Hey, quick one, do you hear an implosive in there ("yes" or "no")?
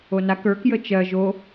no